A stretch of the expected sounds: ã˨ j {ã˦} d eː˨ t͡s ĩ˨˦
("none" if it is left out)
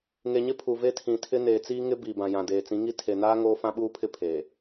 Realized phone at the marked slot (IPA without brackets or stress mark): ã˨